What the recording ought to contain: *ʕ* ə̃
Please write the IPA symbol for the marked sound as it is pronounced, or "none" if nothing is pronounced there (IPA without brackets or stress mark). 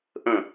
ʔ